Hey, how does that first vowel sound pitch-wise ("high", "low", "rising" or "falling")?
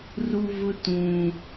high